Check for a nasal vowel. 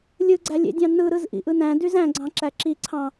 present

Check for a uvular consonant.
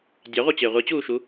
present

